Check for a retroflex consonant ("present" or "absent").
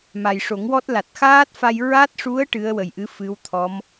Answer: present